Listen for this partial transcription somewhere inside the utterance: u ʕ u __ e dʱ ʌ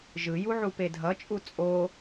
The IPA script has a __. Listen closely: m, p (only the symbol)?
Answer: p